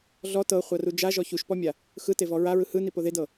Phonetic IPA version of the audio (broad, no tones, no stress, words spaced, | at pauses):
ɮɔ tɤχʷaru d͡ʒaʒɔ çuʃpɔmʲa | xɯtevɔ ɹaɹɯ hɯnipo ðedɤ